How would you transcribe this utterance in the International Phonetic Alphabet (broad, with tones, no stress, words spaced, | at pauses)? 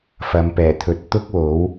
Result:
fɐ˨˧mpɛː˨˩t̪ʰɵ˨˥t̚ t̪ʊ˥k̚wo˨˥w